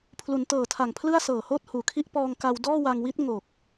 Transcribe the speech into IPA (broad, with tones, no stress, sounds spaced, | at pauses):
pʰ l u˩˦ n t ɤː˨˩ tʰ a˨˩ ŋ pʰ l ɯ˥˩ a̯ s ɤː˨˩ h oː˥˩ t̚ h uː˨˩ kʰ i˥˩ ʔ p ɔː˧ ŋ k a˧ w d ɔː˥˩ w a˧ ŋ w i˦˥ t̚ ŋ o˨˩ k̚